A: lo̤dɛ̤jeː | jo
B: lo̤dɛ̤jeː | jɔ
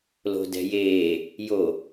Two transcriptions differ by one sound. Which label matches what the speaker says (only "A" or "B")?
A